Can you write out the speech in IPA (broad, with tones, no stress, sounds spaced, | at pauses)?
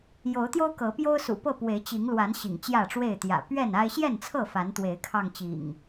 j o˨˦ ʊ̯ t̪ j o˦ ʊ̯ k ɤ˨˦ p j o˦ ʊ̯ s ṵ˨˩ p ɤ˥˨ p w e˨˦ ɪ̯ t͡ɕ i˨˦ ŋ l w a˨˦ n ɕ ḭ˨˩ ŋ t͡ɕ j ä˥˨ ʈ͡ʂ w e˥˨ ɪ̯ t̪ j ä̰˨˩ p ɥ ɛ˥˨ n a˦ ɪ̯ ɕ j ɛ˥˨ n t͡sʰ ɤ˥˨ f a˨˦ n t̪ w e˨˦ ɪ̯ kʰ ɑ˧ ŋ t͡ɕ ḭ˨˩ ŋ